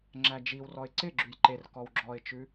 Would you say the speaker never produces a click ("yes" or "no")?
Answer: no